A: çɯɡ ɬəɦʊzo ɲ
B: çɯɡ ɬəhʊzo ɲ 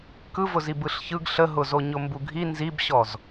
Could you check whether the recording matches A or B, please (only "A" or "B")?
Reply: A